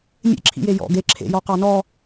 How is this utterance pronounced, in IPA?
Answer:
mʲḛǁʰḭje jɔ̰ ɡe ǁʰḛjɔqɑ nɔ

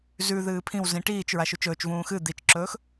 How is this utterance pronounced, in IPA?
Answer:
zʉ ðɨːpʰĩwzĩ ʈiːt͡ʃɹa ʃut͡ʃɵːt͡ʃvũː xɨ d̪it͡ʃǁɵːx

